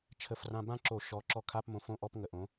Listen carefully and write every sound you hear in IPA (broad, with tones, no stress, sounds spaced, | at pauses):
t͡ʃʰ ə˧˩˧ f r ã˧ b ã˥ ǁ o˧˩˧ ʃ ɔ˨˥ ǁ ɔ˧ kʰ a˧˥˧ p m õ˧ f õ˧˥˧ ʔ ɔ˧˥˧ p ŋ ə˧ ʔ õ˨˥